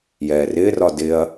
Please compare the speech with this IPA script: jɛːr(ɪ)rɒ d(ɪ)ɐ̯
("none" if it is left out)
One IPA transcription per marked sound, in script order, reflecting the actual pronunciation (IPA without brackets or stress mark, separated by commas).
ɪː, ɪ